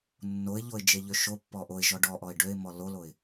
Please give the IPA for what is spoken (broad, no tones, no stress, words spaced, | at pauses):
nːoɪ̯ʎoɪ̯ d͡ʒeʎøʃopːɔ ʔoɪ̯ʒɔ ɖɔʔɔɪ̯ ɖøɪ̯ mɔloloɪ̯